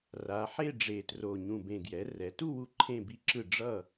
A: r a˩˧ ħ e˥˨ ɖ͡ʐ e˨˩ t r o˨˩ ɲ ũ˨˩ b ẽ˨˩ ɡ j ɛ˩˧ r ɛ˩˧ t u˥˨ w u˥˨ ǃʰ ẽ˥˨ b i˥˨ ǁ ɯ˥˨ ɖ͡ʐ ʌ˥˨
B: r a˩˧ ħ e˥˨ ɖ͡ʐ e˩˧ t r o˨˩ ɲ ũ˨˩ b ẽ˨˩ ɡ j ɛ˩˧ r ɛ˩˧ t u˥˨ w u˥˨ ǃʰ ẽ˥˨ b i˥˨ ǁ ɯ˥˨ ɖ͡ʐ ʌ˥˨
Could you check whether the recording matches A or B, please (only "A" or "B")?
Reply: A